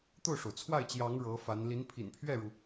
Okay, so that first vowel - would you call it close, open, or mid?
mid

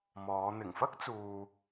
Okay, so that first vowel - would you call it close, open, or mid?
mid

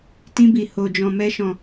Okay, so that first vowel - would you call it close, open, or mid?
close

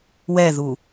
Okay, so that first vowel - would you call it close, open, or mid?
mid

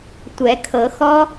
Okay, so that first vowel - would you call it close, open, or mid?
mid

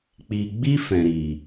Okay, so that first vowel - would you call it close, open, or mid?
close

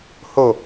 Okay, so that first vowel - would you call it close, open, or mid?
mid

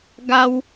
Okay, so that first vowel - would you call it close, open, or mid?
open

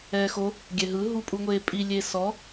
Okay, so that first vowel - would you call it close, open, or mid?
mid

